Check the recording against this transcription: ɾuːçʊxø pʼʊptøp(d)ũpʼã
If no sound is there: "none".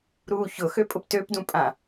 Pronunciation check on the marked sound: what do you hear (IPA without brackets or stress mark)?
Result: d